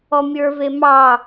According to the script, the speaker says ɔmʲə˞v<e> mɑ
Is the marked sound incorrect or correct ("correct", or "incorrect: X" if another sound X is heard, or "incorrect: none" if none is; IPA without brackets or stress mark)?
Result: correct